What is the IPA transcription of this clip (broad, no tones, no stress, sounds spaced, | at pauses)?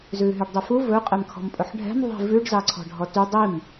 z ʉː ɦ y ɖ dˤ i f u v ɵ qʼ ɛ m kʰ ɔ̤ m pʼ ɵ ħ ɖʱ ɛ̤ m ðˤ i̤ v ʉ ɖ z ɑ ǀʰ ɔ̤ ɖʱ ɔ t y dˤ i m